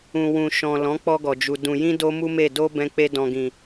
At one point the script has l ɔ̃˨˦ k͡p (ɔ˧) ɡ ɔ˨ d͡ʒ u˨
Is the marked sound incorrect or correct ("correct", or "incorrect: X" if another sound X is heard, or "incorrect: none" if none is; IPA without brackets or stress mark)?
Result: correct